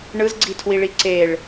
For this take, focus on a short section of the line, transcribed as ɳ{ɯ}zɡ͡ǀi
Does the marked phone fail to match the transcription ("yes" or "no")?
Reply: no